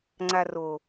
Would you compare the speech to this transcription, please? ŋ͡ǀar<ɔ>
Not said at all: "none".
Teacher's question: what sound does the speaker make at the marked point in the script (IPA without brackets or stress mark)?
o